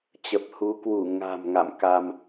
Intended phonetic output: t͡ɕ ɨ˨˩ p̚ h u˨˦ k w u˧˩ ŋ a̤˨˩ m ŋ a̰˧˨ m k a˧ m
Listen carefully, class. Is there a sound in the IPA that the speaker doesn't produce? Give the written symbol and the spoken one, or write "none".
ɨ˨˩ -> ə˨˩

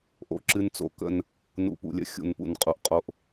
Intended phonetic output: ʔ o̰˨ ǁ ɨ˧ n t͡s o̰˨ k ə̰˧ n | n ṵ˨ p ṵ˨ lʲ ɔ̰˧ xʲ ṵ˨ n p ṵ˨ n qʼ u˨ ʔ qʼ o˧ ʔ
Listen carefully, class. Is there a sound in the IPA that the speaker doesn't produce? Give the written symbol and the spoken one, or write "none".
ɔ̰˧ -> ə̰˧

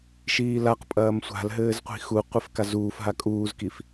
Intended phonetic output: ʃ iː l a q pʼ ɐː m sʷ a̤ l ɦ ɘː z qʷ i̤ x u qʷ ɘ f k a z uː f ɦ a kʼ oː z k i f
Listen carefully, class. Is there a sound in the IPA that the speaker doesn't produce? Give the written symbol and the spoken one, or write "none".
oː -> uː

